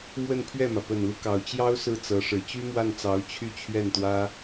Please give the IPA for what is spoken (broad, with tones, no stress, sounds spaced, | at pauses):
m w ə˥˧ n pʰ ɥ ɛ˥˩ m ä˩ p ə˨˩ n l u˦ k ɑ˨˩ ʊ̯ t͡ɕ j ɑ˥ ʊ̯ s ɹ̩˥˩ t͡s ɤ˧˥ ʂ ɻ̩˨˩ t͡ɕ y˥ m w a˥˩ n t͡s ɑ˧˥ ʊ̯ t͡ɕʰ y˥˧ t͡ɕʰ ɥ ɛ˥˩ n t̪ w ä˥